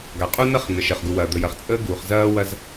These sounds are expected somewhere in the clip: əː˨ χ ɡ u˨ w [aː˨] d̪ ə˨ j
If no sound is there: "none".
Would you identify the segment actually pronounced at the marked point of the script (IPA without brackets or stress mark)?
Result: ɐː˨